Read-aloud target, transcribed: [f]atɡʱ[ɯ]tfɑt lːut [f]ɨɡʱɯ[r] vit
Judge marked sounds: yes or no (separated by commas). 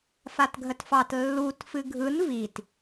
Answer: yes, no, yes, no